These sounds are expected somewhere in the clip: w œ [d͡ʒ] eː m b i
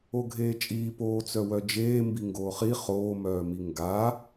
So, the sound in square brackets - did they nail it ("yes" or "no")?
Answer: yes